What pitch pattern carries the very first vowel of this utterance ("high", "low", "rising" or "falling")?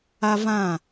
high